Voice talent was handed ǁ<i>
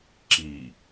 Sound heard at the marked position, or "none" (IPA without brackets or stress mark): i